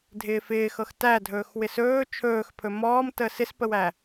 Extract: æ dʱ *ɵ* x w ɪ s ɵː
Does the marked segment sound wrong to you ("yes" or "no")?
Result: yes